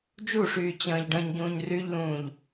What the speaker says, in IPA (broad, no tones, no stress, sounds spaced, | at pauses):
d͡ʒ u ʂ yː t͡ɕ ə̃ː ʎ ɖ ə̃ː ɲ ɟ ũː ɲ r y ʎ l ũː ʎ